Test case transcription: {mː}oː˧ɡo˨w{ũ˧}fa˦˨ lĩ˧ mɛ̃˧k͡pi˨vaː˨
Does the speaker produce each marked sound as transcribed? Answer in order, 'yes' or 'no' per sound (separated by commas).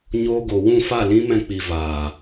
no, no